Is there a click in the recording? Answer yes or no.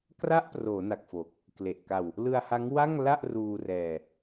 no